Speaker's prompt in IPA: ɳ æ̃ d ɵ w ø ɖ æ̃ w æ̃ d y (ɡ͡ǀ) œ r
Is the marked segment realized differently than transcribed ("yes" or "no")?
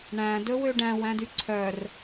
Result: yes